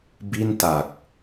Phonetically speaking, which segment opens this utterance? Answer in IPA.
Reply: b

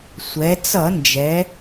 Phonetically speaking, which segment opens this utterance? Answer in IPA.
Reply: sʷ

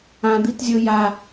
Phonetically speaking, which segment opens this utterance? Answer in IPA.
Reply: ã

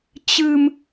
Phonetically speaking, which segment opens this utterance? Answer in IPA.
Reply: t͡ɕ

